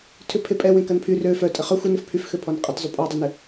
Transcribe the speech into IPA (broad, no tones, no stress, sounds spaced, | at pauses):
tʰ ʏ pʰ e pʼ ɛ w ẽ k ɐ n pʰ y r ø f œ tʼ ə χ œ xʷ ɪ n ɪ f pʰ y f x ø pʰ ɔ n qʼ ə t zˤ ʏ pʼ ɔ dˤ ʏ n ɪ